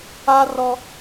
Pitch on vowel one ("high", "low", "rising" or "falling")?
high